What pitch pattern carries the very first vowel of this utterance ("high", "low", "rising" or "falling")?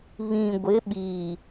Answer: low